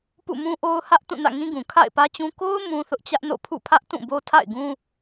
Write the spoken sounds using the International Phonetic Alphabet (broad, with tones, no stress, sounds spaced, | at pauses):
p ṵ˦˨ m ũ˦ ʔ o˦ ʊ̯ h ä˦ ʔ t ũ˦˨ n ä̰˦˨ ŋ ĩ˦ ɡ ũ˨ kʰ a̰˦˨ ɪ̯ p ä˦ t͡ɕ ũ˦ k o˦ ʊ̯ m ũ˦ θ ʊ˦ ʔ t͡ɕ ä˦ ʔ n o̰˦˨ pʰ ṵ˦˨ pʰ ä˦ ʔ t ũ˦˨ b o˦ tʰ a̰˦˨ ɪ̯ ɡ ũ˦